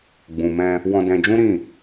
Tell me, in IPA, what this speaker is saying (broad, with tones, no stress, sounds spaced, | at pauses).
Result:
ɡ͡b ũ˨ m ɛ̃˧ | w ɔ̃˧ d ɛ̃˧ d͡ʒ ũ˦ ɾ ĩ˦˨